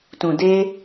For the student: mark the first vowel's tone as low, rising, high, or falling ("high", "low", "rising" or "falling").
low